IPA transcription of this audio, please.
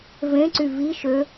v ẽ ǀ y v i ʃ ø

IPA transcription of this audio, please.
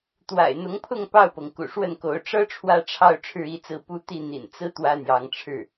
t̪ w a̰˨˩ ɪ̯ n̪ ʊ˧˥ ŋ pʰ ʊ˥˧ ŋ p ɑ˥˩ ʊ̯ p ɤ˩ ŋ k ṵ˨˩ ʂ w ə˥˩ n k o˧˥ ʊ̯ ʈ͡ʂ ɤ˥ ʈ͡ʂʰ w ä˥˧ ʈ͡ʂʰ ɑ˥˧ ʊ̯ ʈ͡ʂʰ ɻ̩˥˧ i˥˧ t͡s ɹ̩˥˩ p u˥ t̪ i˥˩ n̪ ḭ˨˩ n t͡s ɹ̩˥ t̪ w ä˥ n̪ j ɑ˧˥ ŋ ʈ͡ʂʰ ɻ̩˥˩

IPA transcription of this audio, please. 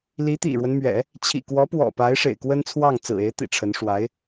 l i˧˥ t̪ ḭ˨˩ ɻ w ə˦ n m ɥ ɛ̰˨˩˦ | t͡ɕʰ ḭ˨˩ k w ɔ˧˥ p w ɔ̰˨˩ p a˧˥ ɪ̯ ʂ ḛ˨˩ ɪ̯ k w ə˥ n t͡sʰ w ɑ˥˩ ŋ t͡s ɹ̩˨˩ e˧˥ ɪ̯ t̪ ḭ˨˩ ʈ͡ʂʰ ə˧˥ n ʂ w a˧˥ ɪ̯

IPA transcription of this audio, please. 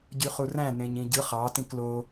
ɟ y χ u r æ̃ n ẽ ɲ ĩ ɟ ɯ χ ɑ t ĩ k l o

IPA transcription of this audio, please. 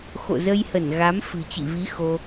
x o̰˧˨ z ə˧ j h ə˧˩ n ɣ a˨˦ m f ɨ̤˨˩ t͡ɕ ḭ˧˨ v i˨˦ x o˧

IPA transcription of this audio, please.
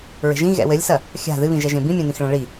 ɹ e̤ ʒ ĩ ɣ ɛ̰ w ɘ lʲ s ɐ | xʲ a̤ ð ɨ β ĩ ʒ ɛ ʒ ẽ b ĩ mʲ ẽ n̪ ĩ x ɭ ɐ̃ ɭ i

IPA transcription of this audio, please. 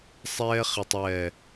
sˤ ɛː˧ χ i˨ tˤ w ɛ˨

